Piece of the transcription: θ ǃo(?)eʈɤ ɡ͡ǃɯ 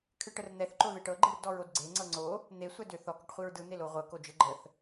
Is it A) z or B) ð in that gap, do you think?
B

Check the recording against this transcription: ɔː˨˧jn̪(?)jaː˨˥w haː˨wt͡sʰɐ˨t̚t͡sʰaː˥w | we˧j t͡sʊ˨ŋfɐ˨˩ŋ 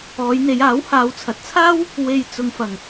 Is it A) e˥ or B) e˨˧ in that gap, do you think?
B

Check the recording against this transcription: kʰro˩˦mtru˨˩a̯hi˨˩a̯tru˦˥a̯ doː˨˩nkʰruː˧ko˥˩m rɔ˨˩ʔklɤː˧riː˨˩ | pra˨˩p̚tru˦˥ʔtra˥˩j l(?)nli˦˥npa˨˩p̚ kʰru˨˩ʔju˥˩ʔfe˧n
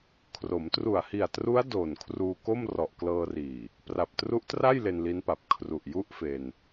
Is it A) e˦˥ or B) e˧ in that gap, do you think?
B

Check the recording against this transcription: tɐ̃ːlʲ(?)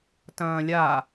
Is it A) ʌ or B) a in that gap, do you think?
B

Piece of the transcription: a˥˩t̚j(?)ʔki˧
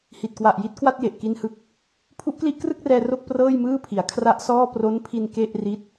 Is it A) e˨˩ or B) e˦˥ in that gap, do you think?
A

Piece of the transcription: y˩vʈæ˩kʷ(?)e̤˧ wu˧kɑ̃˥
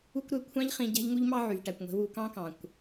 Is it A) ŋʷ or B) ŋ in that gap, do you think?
A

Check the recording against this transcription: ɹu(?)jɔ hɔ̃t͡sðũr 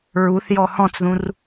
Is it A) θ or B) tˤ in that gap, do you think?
A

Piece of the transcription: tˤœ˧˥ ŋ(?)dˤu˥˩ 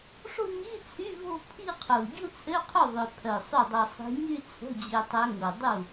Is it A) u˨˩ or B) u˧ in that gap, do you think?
A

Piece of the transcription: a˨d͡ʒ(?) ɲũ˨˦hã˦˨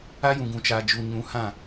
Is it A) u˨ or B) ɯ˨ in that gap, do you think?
A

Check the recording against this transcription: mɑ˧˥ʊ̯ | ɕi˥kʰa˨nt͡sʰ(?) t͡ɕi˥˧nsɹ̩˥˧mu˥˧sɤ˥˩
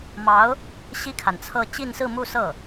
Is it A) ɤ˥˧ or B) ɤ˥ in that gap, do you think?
A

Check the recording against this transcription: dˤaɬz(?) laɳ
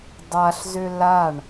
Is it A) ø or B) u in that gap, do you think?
A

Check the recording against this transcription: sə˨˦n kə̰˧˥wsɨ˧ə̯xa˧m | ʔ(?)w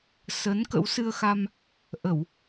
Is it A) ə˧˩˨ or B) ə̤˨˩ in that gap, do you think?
A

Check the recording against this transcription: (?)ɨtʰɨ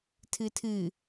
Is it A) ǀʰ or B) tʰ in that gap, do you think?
B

